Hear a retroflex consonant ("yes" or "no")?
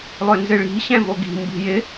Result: yes